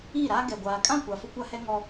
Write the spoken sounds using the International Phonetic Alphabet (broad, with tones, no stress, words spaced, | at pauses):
i˦˨ɾa˦ɡɛ˨ ɡʷaː˨kʼã˦˨kʷa˨ fʊ˦kʷa˦hɛ˦ ŋɔ˦